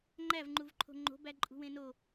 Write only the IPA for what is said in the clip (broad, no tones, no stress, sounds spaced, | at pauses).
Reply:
ŋ͡ǃ æ v ŋ͡ǃ u v ǃʰ o̤ ŋ͡ǃ o̤ b æ ǃʼ ṳ w ẽ n o